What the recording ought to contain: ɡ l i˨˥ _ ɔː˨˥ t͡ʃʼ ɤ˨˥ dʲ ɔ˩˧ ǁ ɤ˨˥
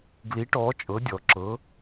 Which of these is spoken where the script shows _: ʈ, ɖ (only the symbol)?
ʈ